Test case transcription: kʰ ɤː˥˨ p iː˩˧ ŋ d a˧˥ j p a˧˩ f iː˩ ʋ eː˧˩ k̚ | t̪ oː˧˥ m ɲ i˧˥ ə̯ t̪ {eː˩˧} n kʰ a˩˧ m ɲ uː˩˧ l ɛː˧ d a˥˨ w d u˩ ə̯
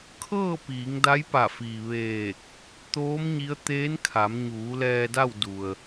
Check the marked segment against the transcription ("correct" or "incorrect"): incorrect